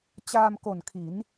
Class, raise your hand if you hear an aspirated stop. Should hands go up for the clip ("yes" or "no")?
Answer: yes